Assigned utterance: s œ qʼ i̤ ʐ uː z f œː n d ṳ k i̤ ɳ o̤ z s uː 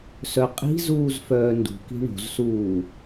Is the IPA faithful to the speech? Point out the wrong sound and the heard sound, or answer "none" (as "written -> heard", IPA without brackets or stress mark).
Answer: ʐ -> z